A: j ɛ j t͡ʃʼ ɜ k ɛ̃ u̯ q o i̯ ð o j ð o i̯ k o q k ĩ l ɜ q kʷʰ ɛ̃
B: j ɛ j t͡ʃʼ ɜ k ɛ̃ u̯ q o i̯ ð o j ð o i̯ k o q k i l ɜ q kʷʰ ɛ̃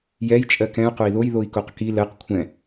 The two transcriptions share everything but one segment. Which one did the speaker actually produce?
B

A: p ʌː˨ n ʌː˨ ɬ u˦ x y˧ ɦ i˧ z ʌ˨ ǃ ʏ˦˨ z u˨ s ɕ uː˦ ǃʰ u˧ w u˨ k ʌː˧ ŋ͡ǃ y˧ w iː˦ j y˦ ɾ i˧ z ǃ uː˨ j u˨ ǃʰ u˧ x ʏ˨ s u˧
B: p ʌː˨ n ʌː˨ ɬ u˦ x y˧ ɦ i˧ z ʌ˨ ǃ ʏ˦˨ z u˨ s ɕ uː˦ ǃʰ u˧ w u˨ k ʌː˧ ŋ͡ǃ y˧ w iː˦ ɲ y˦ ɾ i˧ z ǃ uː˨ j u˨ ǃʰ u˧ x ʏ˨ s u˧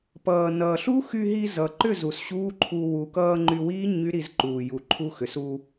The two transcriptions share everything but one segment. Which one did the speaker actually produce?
B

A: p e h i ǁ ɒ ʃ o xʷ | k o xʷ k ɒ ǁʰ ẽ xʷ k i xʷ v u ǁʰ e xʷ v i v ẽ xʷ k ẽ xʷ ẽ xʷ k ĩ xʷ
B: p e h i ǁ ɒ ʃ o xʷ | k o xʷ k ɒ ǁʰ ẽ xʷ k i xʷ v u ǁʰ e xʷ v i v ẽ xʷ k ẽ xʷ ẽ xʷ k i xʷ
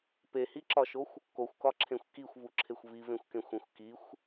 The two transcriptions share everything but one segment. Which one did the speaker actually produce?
B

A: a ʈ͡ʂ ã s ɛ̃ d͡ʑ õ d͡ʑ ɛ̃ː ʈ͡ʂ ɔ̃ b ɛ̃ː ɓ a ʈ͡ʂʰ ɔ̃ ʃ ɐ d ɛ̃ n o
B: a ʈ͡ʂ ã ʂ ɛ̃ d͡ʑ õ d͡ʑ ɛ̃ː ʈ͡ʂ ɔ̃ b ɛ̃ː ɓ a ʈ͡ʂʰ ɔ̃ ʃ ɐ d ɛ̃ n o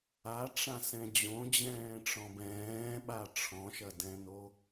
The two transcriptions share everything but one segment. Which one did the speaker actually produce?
A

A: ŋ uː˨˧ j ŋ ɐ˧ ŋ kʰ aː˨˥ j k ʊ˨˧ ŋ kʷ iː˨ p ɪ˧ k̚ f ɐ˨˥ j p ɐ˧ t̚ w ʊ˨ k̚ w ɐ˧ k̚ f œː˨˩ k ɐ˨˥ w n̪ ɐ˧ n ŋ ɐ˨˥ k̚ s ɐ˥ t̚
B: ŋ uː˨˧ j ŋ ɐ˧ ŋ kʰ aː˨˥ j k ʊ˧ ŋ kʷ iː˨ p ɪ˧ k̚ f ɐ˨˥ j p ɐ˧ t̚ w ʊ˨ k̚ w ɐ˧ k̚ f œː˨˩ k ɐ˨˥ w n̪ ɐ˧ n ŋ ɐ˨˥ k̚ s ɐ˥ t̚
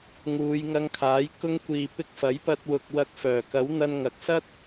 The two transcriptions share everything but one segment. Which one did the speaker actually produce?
B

